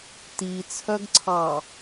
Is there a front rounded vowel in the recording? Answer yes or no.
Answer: yes